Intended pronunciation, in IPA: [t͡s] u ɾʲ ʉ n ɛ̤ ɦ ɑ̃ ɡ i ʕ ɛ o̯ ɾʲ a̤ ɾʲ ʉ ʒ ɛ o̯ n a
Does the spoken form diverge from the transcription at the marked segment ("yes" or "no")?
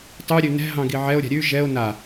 yes